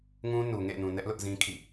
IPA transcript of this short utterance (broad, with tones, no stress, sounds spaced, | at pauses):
ŋ ũ˦ n u˨ ŋ ḛ˦˨ n ũ˨ n ɛ˦ ʔ l ʊ˦ ʔ z ĩ˦ kʰ ḭ˦˨